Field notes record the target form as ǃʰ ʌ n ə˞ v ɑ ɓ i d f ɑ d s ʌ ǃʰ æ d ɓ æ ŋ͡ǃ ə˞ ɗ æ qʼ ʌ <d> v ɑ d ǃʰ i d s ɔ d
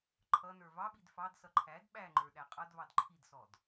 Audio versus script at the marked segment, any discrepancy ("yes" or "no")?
no